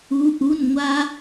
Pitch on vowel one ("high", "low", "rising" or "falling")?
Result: rising